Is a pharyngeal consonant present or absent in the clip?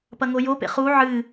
present